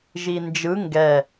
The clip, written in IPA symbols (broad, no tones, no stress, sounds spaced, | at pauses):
ʒ i n d͡ʒ ɯ ŋ ɡ ɛ